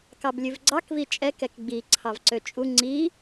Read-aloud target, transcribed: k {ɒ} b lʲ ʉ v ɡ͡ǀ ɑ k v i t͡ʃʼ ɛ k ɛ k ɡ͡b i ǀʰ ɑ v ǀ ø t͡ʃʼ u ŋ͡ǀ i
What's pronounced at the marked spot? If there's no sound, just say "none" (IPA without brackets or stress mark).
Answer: ɑ